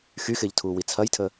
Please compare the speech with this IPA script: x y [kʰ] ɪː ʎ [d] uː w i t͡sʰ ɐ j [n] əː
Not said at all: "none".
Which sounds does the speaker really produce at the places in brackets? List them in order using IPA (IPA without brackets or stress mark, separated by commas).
x, tʰ, tʰ